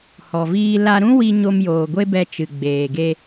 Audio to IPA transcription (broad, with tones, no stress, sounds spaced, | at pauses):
h ɔ˨ v iː˧ l a˧ ɾ ũ˦ w i˧ ɲ o˧ m j oː˨ ɡʷ e˦ b ɛ˧ t͡ʃ ɨ˨ ɡ͡b eː˨ ɡ e˧